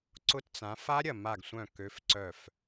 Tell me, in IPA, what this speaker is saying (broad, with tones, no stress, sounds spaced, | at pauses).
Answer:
ǀ ʊ˦˥ t t͡s ã˨˦ f a˦˥ ɾʲ ɐ˧˩ m a˧˩ ɡ sʷ œ̃˧˩ k ø˨˦ f ǀ œ˧˩ f